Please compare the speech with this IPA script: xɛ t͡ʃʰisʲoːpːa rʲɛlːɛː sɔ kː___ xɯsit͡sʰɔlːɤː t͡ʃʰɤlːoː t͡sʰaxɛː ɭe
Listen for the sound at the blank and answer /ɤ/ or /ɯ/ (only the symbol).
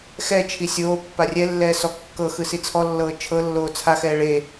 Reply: ɤ